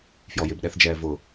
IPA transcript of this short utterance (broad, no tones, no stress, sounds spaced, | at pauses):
f j ɔ j ɪ b ɗ ɛ θ d͡ʒ ɛː v ʊ